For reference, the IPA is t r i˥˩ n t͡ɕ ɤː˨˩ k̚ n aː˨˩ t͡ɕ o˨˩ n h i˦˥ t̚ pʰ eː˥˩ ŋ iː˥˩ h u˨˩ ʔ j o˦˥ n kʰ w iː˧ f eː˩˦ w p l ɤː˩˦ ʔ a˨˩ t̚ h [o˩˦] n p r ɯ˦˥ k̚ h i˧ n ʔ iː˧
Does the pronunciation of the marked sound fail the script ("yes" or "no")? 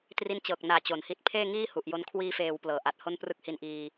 yes